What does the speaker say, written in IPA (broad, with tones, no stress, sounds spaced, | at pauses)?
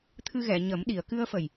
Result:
t̪ʰ ɨ˧ ɣ ɛ˨˩˨ ɲ ə˨˩˦ m ɗ i˨˩˨ ə̯ k ɨ˧ ə̯ f ə˨˩ j